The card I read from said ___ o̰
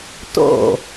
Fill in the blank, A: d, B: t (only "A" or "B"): B